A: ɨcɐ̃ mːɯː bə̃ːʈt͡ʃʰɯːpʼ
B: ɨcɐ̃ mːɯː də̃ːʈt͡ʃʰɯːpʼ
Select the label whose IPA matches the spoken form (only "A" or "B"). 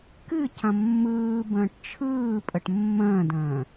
A